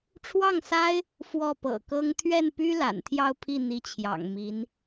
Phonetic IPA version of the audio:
ʈ͡ʂʰ w ɑ˥˩ ŋ s a˥ ɪ̯ | f w ɔ˥˩ p ɤ̰˨˩ k ɤ˥ ŋ t̪ʰ ɥ ɛ˥˩ n p y˥ l a̰˨˩ n t̪ʰ j ɑ˥˧ ʊ̯ pʰ i˥˩ n̪ i˧˥ t͡ɕʰ j ɑ̰˨˩ ŋ m i˧˥ n

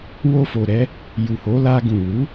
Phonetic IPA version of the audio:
w o˧ f o˨ ɾ ɛ˨˦ | j u˨ h o˨˦ l a˧ ɡ ũ˨ w u˨˦

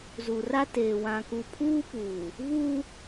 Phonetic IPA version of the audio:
z u˨ r a˦ t eː˨ w ã˨ k u˨ pʰ uː˦ p uː˨ | v uː˦

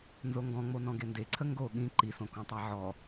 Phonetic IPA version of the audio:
n z o ŋ ɡ ɔ̃ ŋ͡m o n ɔ̃ ɡ e n d e ǀʰ ə ŋ ɡ o ɠ ĩ ǃ i s õ k õ tˤ æ ʕ ɔ

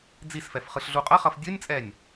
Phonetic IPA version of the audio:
d͡z i s f ɛ f χ ɯ ɬ ɮ u qʼ ʌ χ ʌ f dʲ ɯ nʲ t͡sʼ ɛ nʲ

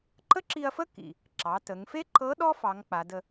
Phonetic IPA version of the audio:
ǃ ə˥ ǁ i˧ ɐ̯ f ə˥ k ḭ˩ | ǁ ɑ˩˧ t ə˩˧ ŋ f e˥ ǃ ɤ˧˥ ɗ ɔ˥ f ɑ˩˧ ŋ k͡p a˩˧ d ə˧

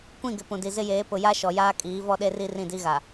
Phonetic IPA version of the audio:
kʷ ĩ˦˨ ɡ ɪ˨ p ũ˨ d i˨ z ɪ˦ j eː˨˦ p ʊ˨ j a˦ ʃ ɔ˨ j aː˦ kʼ iː˨˦ v ɔ˦ ɗ e˦ r i˦ r ĩ˦˨ d i˦ ɣ a˨

